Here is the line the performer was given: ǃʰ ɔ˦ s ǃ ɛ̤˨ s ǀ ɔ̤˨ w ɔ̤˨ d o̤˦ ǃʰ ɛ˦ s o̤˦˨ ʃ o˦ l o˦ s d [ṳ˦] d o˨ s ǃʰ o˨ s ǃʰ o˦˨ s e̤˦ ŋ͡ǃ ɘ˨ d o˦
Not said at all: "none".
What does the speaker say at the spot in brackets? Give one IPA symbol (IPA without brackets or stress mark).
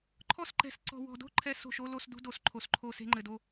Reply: ṳ˦